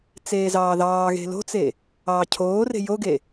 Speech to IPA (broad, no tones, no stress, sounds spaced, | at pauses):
t͡s eː z ɑː ð ɑː ɣ e̤ l o̤ t͡s e | ɑː cʰ oː r e̤ j o ɡ e